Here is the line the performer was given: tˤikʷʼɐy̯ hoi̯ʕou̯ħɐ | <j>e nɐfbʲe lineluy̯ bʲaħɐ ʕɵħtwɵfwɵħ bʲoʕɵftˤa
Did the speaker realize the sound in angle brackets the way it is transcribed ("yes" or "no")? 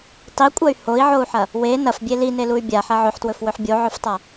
no